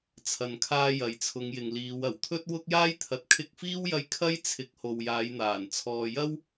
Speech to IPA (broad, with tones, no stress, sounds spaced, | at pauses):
t͡sʰ ɐ˨ n kʰ aː˧ j ɐ˨ j t͡sʰ ʊ˨˧ ŋ j ɪ˨ ŋ l iː˨˧ w ɐ˨˩ w t̪ʰ ɵ˥ t̚ w ʊ˥ k̚ j aː˥ j t̪ʰ ɐ˨ t̚ kʰ ɪ˧ k̚ f iː˥ w j ɐ˧ j kʰ ɐ˥ j t͡sʰ ɪ˨˥ k̚ h o˨ w j aː˨˧ j n̪ aː˨˩ n t͡sʰ ɔː˨ j ɐ˥ w